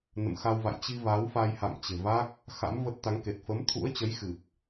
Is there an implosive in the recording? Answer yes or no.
no